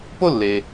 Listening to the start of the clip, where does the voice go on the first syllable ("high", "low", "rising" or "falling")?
high